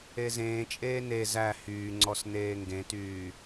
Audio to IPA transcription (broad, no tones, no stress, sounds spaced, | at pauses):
e z ẽː t͡ʃʼ eː n e z æ h yː ŋ͡ǀ ɔ s n eː ŋ ɡ ẽ t yː